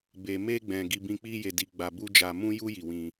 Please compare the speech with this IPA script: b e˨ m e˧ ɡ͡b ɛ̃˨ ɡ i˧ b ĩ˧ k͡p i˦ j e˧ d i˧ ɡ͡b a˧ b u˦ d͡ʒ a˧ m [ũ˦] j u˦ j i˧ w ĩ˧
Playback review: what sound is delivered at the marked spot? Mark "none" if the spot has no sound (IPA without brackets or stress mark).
ũ˦